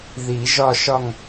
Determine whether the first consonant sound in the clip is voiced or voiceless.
voiced